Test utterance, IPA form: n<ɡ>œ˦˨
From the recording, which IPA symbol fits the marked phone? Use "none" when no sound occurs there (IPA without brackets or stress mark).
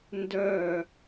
d